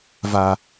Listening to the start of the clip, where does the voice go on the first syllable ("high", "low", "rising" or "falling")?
low